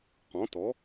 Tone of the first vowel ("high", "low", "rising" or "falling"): rising